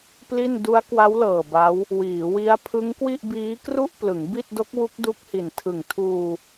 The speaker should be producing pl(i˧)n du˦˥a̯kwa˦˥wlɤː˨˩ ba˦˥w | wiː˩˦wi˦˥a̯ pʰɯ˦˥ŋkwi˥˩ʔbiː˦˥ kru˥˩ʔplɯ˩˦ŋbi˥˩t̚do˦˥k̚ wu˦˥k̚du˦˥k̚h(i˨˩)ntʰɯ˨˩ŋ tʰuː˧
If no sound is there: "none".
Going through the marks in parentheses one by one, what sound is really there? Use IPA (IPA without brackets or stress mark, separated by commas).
i˥˩, i˨˩